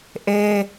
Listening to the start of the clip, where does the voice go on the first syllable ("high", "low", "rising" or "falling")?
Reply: high